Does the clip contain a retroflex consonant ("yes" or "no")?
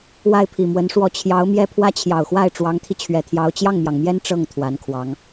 yes